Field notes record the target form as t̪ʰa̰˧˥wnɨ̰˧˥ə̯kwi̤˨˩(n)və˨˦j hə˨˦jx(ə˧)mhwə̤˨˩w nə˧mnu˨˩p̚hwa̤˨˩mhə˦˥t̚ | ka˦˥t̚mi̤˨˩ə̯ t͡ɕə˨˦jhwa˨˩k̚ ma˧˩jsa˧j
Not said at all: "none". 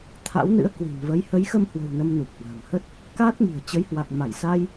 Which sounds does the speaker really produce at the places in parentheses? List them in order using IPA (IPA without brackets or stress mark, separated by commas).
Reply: n, ə˧